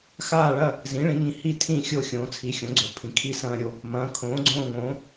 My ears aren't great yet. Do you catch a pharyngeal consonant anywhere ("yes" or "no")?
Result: no